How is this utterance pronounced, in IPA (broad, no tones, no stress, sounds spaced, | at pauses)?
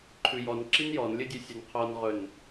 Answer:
ǃʰ ʉ j ɔ n ǁ i n j ɔ n lʲ ɵ dʲ ʉ sʲ ə n qʰ ɔ n ʁ ɵ n